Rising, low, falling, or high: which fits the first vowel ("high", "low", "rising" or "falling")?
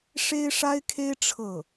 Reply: high